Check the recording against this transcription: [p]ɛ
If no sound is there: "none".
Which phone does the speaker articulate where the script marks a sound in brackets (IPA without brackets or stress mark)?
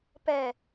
p